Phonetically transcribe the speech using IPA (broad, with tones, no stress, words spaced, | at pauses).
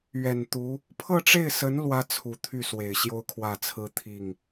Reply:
ɥɛ˨˩nt̪u˧˥ | pʰɤ˥˧ʈ͡ʂe˥˩ɪ̯sə˧˥n lwä˥t͡sʰu˨˩t̪ʰy˥˩ swe˨˩ɪ̯ɕjo˥ʊ̯kʰwä˥˩t͡sʰɹ̩˥ t̪ʰi˥˩ŋ